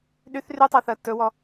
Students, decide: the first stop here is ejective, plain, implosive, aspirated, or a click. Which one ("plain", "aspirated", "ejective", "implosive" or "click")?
implosive